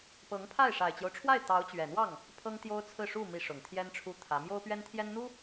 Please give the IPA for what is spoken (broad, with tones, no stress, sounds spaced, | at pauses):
p ɤ˧˥ ŋ pʰ a˥˩ ɪ̯ ʂ a˨˩ ɪ̯ t͡ɕ j o˦ ʊ̯ ʈ͡ʂʰ w a˥˩ ɪ̯ t̪ ɑ˧˥ ʊ̯ t͡ɕ ɥ ɛ˨˩ n̪ w ɑ˥˩ ŋ | pʰ ɤ˥ ŋ t̪ j o˥ ʊ̯ t͡sʰ ɹ̩˥˧ ʂ u˥˩ m i˥ ʂ ʊ˨˩ ŋ t̪ʰ j ɛ˥ n ʈ͡ʂʰ u˥ t̪ʰ ä˧˥ m j o˥ ʊ̯ p ɥ ɛ˥ n t̪ʰ j ɛ˥ n n̪ u˥